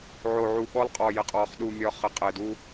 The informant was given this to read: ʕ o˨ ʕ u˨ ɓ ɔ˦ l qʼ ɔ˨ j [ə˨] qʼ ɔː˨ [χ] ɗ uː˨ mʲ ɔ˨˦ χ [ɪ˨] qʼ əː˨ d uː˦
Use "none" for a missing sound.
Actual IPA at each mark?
ə˨, χ, ə˨

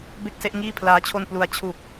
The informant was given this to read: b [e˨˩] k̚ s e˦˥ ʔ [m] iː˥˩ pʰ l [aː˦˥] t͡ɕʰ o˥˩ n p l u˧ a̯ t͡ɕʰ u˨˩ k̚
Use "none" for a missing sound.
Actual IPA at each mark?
e˥˩, ŋ, aː˦˥

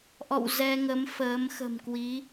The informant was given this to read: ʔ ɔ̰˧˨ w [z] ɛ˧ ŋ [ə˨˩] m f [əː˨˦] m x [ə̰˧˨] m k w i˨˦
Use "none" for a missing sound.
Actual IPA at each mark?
z, ə˨˦, əː˨˦, ə̤˨˩

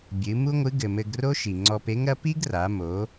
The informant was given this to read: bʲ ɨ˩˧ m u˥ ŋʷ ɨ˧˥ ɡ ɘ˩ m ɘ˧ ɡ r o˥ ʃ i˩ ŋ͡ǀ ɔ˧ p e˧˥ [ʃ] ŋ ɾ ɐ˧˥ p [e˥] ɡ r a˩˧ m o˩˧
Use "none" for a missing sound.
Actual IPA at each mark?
none, i˥

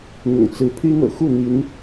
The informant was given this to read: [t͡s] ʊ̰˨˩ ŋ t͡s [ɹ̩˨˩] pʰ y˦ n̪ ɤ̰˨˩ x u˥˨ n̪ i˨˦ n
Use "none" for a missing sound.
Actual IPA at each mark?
n̪, ɹ̩˨˦

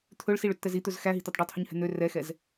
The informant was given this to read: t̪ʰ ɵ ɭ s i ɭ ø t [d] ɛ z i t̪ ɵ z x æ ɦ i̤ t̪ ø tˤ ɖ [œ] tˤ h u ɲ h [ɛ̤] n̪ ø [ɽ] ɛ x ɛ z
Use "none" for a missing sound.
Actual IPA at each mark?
t̪, ø, ɛ̤, r

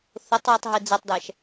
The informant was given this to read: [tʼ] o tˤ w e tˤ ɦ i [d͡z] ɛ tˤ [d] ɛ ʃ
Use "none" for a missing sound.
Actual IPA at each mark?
θ, d͡z, d

